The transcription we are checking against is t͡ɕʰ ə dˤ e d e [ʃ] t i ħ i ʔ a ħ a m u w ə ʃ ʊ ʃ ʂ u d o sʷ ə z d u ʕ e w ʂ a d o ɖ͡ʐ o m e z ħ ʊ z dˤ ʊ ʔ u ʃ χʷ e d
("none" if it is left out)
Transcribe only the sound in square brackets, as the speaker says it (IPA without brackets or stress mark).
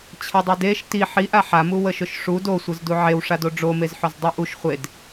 ʃ